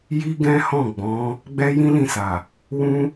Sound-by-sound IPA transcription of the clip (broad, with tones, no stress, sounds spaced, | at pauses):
j i˦ ɡ ɛ̃˦ h ɔ̃˦˨ ɡ͡b ɔ̃˨˦ | ɡ͡b ɛ˦ j ĩ˦ l ĩ˦˨ s a˨ | w ũ˦